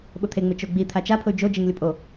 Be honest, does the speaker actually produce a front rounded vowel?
yes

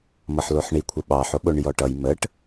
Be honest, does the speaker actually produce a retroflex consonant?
yes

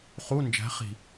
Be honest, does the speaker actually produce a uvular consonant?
yes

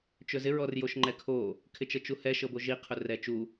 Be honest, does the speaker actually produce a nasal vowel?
no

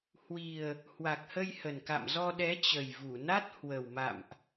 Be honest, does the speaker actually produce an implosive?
yes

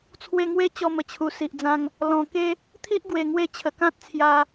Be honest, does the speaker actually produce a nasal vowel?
yes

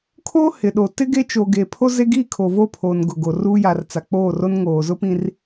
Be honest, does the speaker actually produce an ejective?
no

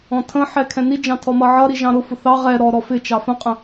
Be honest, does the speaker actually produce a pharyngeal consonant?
yes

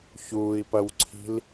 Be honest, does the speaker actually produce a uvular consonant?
no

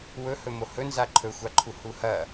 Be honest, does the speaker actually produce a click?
yes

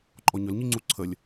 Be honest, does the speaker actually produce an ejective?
yes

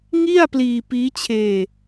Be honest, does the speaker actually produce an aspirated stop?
yes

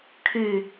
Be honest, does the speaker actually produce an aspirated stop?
yes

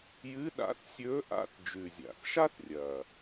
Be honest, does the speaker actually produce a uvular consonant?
no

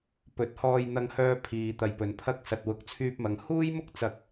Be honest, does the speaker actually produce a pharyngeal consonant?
no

